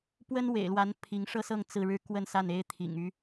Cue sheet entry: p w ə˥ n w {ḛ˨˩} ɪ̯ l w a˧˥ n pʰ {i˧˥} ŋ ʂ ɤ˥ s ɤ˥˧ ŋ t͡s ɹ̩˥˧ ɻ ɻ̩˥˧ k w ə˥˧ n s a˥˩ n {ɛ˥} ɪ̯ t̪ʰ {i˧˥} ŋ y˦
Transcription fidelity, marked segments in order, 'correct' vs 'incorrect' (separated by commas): correct, correct, incorrect, incorrect